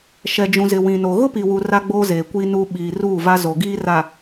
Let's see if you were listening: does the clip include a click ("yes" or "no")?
no